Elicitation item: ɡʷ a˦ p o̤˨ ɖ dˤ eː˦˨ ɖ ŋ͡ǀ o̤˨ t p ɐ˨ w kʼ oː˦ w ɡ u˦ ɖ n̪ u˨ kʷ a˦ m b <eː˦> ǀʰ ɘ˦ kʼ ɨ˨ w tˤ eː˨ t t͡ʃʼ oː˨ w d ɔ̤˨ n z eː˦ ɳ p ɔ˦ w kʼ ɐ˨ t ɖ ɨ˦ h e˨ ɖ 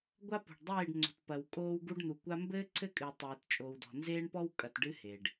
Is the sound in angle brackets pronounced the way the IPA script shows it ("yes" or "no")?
no